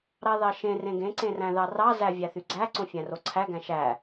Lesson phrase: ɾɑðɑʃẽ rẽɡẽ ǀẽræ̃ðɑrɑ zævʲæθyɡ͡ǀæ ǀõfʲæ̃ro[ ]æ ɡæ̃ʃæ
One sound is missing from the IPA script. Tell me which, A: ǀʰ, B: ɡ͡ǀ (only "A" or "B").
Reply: A